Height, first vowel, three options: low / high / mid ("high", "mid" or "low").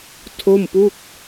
mid